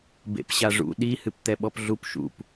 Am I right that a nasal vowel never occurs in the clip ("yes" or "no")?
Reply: yes